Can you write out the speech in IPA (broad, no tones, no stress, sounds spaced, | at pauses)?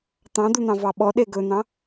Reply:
t̪ ɑ̃ d̪ u n̪ ɑ̃ v ɑ ɓ ɔ ɗ e ɡ ɵ n̪ ɑ̃